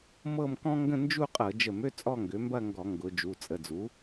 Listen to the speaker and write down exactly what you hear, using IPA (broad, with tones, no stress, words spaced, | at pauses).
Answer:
mɤ˥˧mkɔ̃˥ŋɡə̃˥˧ nd͡ʒu˥˧qʼɤ˧˩˧ d͡ʒə˧˩˧mø˥˧ t͡sʼɔ˥˧ŋɡø˩˥mbɐ˥˧ ŋɡɔ˧˩˧ŋɡʊ˩˧ d͡ʒu˩˧˩t͡sʼə˩˧˩d͡zu˩˥